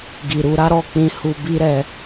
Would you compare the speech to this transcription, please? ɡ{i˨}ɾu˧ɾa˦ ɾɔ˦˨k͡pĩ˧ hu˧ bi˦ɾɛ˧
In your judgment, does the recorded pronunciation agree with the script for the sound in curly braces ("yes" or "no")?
yes